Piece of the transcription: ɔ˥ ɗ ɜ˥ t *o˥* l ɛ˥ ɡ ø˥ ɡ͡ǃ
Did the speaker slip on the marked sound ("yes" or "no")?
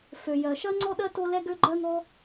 no